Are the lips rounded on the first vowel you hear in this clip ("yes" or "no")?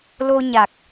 yes